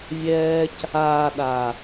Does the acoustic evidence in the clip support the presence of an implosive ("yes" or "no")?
yes